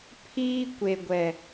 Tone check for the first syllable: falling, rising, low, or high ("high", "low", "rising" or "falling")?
high